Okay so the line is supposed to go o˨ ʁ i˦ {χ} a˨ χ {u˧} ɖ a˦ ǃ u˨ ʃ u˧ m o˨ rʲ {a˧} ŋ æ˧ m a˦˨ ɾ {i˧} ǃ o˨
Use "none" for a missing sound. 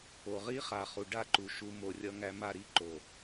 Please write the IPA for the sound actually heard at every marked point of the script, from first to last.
χ, u˨, ʌ˧, i˦

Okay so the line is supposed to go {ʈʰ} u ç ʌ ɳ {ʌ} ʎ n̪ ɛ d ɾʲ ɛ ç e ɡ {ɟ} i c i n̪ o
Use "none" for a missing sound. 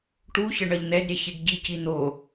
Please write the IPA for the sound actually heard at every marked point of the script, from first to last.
ʈ, ʌ, ɟ

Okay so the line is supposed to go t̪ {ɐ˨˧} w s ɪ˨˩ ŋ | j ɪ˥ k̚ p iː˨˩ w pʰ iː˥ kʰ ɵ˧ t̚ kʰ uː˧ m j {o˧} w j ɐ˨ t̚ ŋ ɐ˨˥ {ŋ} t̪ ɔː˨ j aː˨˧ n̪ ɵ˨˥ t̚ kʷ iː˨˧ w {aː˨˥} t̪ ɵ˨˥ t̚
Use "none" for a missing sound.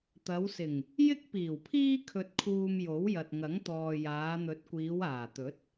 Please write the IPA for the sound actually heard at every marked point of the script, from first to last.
ɐ˨˧, o˨˥, ŋ, aː˨˩

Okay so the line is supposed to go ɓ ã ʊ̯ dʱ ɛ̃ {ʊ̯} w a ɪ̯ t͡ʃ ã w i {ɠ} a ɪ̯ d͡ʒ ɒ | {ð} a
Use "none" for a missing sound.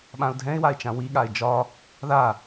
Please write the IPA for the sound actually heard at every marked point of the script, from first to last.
ɪ̯, ɠ, ð

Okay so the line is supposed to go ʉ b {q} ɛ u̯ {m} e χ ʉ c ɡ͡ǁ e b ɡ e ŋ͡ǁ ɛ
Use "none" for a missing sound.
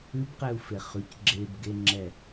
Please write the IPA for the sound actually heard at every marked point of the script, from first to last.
q, f

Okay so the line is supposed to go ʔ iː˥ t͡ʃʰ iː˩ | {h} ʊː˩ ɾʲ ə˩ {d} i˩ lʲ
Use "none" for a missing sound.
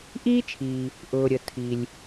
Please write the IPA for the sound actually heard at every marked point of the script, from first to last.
ʔ, tʰ

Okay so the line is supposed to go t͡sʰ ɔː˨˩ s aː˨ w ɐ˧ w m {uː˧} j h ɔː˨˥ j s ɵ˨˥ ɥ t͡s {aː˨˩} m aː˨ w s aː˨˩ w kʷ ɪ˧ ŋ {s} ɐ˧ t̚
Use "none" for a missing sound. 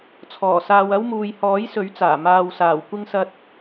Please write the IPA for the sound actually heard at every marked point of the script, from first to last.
uː˨, aː˨˩, s

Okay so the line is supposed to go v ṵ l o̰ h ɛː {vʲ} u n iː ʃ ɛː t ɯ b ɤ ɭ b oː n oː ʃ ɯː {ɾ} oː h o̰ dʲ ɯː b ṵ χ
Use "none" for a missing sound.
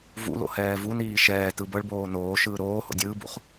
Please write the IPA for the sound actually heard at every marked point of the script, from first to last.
v, ɾ

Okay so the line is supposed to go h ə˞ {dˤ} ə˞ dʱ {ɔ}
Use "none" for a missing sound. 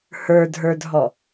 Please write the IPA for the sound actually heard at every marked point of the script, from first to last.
dʱ, ɔ

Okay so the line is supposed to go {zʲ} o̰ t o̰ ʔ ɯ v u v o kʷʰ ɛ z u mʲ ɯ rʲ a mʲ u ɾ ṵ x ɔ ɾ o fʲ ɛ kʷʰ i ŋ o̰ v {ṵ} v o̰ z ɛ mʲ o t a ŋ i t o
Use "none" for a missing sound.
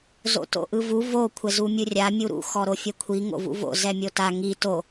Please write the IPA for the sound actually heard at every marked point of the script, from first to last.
z, ṵ

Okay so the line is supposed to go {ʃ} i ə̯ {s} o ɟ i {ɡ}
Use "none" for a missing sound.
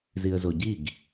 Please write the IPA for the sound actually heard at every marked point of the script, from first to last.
z, z, ɡ

